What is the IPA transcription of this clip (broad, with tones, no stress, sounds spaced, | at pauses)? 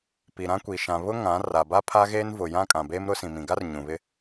p i˨ ɾ ã˦ kʷ i˨ ʃ ã˨ β ʊ˦ ŋ ã˨˦ r a˨ b a˦ pʰ a˦ ɣ eː˦ n v ʊ˨ j ã˦ kʼ ã˨ b eː˦ m ɾ ʊ˦ s ĩ˨ m ĩ˨ ɡ a˦ r ɲ ũ˨ β ɪ˦